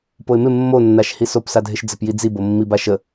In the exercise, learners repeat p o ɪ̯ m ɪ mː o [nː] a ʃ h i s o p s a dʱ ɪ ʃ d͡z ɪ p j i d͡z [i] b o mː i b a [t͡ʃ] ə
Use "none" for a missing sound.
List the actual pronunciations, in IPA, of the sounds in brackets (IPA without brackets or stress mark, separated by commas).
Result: nː, i, ʃ